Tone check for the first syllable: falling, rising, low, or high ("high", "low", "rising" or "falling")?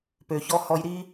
low